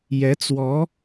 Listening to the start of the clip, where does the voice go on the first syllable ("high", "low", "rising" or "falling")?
rising